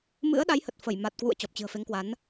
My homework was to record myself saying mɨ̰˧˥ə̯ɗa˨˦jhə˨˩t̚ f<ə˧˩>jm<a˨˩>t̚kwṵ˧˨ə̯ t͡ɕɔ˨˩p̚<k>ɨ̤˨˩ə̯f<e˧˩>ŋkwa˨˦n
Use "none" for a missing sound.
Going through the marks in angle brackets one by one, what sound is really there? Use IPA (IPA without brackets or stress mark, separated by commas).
ə˧˩, a˨˩, t͡ɕ, e˨˦